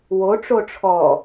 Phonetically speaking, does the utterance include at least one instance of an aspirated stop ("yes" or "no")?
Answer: yes